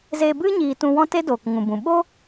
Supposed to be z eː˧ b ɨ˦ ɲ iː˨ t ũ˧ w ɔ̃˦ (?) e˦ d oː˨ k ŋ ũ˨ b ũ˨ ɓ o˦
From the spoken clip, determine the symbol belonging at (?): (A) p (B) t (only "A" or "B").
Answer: B